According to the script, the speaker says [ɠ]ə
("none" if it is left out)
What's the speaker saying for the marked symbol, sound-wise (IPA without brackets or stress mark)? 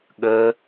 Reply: ɠ